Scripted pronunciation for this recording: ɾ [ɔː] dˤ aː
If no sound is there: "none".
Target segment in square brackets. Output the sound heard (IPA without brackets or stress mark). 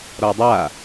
ɔː